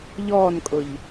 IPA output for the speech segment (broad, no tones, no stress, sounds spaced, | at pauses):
ʎ ɔː n kʼ ʊ ʎ